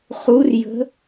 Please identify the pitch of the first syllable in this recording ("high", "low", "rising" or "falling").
rising